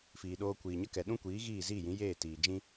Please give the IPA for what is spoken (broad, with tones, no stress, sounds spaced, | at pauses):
f iː˨ ɗ oː˧ kʷ iː˨ ɲ ə˦ k ɛ˨ ɗ ũ˦ kʷ iː˨˦ ɣ iː˦˨ z iː˦˨ j ĩ˨˦ j eː˦˨ t iː˨ d͡ʒ ĩ˦